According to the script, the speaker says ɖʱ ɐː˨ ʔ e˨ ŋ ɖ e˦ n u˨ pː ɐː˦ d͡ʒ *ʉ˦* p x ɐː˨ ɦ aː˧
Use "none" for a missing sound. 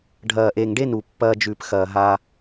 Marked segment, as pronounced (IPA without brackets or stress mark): ʉ˧